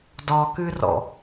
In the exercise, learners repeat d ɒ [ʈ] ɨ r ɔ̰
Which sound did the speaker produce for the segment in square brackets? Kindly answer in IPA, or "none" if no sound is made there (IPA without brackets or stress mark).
k